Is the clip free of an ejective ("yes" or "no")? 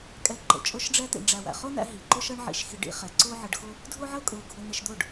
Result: no